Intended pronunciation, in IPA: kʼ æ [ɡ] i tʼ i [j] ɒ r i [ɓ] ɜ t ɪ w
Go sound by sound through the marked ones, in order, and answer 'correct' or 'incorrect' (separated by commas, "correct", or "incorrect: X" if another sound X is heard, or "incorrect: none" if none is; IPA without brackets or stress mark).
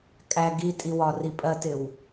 correct, incorrect: w, incorrect: pʼ